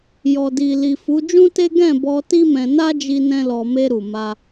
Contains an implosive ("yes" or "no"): no